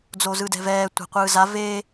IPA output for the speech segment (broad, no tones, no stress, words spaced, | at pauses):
d͡zozɯdɛ̤vɛː tʷa̤qʷɯːza veː